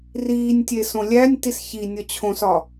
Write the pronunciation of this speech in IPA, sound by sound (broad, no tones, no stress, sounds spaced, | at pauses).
r iː nʲ tʲ e s õ lʲ æ nʲ t i s ç i nʲ ɒ t͡ɕʰ õ s ɒ